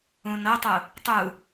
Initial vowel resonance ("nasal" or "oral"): nasal